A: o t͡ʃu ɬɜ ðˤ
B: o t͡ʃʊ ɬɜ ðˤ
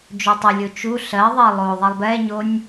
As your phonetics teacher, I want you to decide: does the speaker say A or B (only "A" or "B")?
A